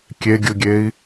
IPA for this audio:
kʲeɡʲɯɡʲei̯

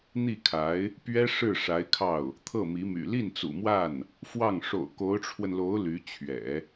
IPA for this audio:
n̪i˥˩kʰa˧˥ɪ̯ | pɥɛ˥ ʂɻ̩˥˩ʂa˧˥ɪ̯kʰɑ˥˩ʊ̯ | t̪ʰɤ˥˩mi˧˥my̰˨˩ li˥˩nt͡sṵ˨˩mwa˥˩n | fwɑ˥˩ŋ ʂo̰˨˩ʊ̯ ko˧˥ʊ̯ʈ͡ʂʰwə˧nlo˧˥ʊ̯ ly˧˥t͡ɕʰɥɛ̰˨˩˦

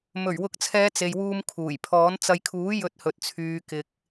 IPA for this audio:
mɵ˨˩ɥwʊ˨˥k̚t͡sʰɛː˨˧ t͡se˨jwuː˧mkʰuː˨˩j pʰɔː˨˥nt͡sɐ˧j kʰuː˨˥jɵ˨˥t̚ hɵ˨t̚t͡sʰyː˨kɪ˨k̚

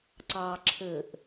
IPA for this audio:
ǀɑ ǁʰɘʔ

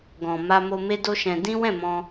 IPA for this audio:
ɡɔ̃˨ ma˧mo˧ me˦do˦ʃɛ̃˧ dĩ˦ wɛ̃˦˨mɔ̃˧

